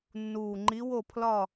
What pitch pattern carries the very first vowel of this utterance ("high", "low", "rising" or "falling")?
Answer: low